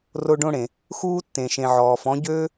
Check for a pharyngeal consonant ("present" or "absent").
present